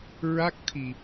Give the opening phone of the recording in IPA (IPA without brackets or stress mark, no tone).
ɹ